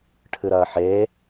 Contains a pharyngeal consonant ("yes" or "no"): yes